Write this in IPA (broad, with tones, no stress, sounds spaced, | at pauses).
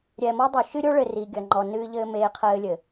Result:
ɾʲ ɛ˨ m ɔ˦ dˤ o˨ ʃ ɨ˦ ɾʲ o˦ ɭ ɘ˨ r i˨ ɡʲ ɐ˨ ŋ͡ǃ ɔ˨ n ɨː˦ ʎ ɘː˦ m eː˦ qʰ ɘː˦ lʲ ɘ˨